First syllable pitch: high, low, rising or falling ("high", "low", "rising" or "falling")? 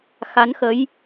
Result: rising